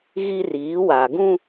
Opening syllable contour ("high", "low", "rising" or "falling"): high